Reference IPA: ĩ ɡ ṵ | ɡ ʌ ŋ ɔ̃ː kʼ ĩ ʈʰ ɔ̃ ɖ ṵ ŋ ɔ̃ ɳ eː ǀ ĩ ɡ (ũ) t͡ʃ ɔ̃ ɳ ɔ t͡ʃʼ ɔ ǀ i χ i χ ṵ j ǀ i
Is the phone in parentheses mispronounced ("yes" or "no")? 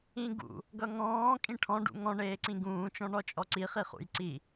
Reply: yes